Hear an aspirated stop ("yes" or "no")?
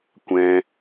no